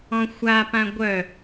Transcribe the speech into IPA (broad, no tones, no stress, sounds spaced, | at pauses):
ɔ̃ xʷ a p ã ɡʷ œ